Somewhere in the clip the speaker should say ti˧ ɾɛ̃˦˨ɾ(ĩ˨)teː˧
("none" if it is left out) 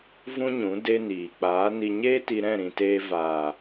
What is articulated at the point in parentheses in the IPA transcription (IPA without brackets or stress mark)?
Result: ĩ˨